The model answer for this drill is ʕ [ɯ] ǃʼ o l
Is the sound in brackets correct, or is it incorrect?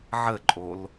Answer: incorrect